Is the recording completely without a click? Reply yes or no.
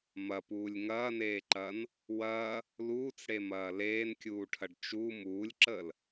no